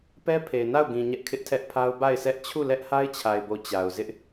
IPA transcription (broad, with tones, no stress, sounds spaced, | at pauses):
p ɛ˦ pʰ e˨ ɪ̯ n a˦˨ ʊ̯ ɡ ĩ˨ ɲ ɛ˦ ʔ kʰ ɪ˦ ʔ tʰ ɛ˦ ʔ pʰ a˦ ʊ̯ b a˦˨ ɪ̯ sʰ ɛ˦ ʔ t͡ɕʰ u˦˨ l ɛ˦ ʔ h a˦ ɪ̯ t͡ɕʰ a˨ ɪ̯ b o˨ t͡ɕ a˨ ʊ̯ z ɪ˦ ʔ